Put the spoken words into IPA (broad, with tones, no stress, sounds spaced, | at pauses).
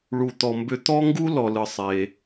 ɭ u˩ t̪ ɔ˩ m b ʏ˧ t̪ ɔ˥ ŋ ɡ u˥ l ɔ˩ l ɯ˩ sˤ e˩